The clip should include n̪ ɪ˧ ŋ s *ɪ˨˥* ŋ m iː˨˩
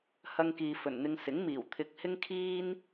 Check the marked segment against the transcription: correct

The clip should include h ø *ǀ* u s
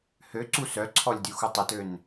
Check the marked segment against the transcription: correct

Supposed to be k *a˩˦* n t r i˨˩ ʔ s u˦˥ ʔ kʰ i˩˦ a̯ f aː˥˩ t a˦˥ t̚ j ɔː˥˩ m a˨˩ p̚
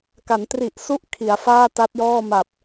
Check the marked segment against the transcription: correct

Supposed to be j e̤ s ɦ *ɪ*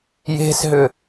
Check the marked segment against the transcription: incorrect: ʏ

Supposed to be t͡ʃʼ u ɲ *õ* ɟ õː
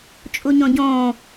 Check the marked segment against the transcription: correct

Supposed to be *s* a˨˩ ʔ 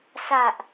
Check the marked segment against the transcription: correct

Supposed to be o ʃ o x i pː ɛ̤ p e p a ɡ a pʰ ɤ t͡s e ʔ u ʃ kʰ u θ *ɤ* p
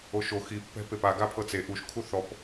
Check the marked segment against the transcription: incorrect: ɔ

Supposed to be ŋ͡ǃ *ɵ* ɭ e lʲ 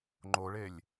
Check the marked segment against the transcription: incorrect: o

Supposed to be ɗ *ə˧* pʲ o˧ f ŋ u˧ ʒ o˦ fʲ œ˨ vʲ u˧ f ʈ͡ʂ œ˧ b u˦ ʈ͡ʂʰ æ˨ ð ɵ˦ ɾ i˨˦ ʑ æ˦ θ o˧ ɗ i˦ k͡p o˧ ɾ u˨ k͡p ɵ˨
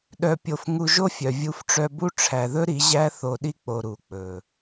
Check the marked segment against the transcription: incorrect: œ˧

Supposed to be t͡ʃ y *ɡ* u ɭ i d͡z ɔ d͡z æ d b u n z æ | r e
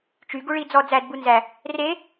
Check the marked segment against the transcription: correct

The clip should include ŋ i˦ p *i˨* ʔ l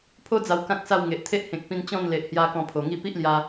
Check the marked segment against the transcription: incorrect: i˦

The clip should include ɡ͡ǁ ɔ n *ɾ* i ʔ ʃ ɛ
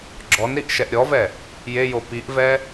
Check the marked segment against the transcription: correct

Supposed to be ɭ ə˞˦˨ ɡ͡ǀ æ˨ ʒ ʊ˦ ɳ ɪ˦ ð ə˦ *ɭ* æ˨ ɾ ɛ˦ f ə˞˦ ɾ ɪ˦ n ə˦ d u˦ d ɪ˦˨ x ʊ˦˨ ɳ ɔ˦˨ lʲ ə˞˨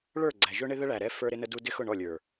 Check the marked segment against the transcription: correct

